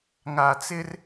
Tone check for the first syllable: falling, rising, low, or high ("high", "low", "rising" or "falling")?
low